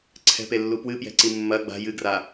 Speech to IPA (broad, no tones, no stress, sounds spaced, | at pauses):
ǀʰ ɛ̤ p e lː u p w ɨ p j ɛ̤ ǀ i mː ɐ ɡ͡b a̤ j ɨ ɡ r a